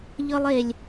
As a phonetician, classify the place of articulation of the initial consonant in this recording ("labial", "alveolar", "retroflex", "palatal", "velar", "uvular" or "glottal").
palatal